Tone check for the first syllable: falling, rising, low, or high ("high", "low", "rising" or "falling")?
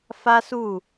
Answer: high